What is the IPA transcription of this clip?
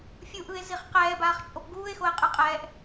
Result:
fʲ u ʔ ɯ e̯ z i χ q ɛː b aː χ t͡ʃʼ o p ɡ uː e̯ x o e̯ qʼ ɯ qʼ ɛː ʔ

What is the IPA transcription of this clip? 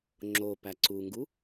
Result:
ŋ͡ǁ o p æ ǀ u ŋ ɡ u

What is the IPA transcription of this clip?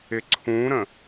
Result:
ɪ ǀʰ ũ ɾ ə̃

